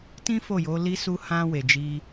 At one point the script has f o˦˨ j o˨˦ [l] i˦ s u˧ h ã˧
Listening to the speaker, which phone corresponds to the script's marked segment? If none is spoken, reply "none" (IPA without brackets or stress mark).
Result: l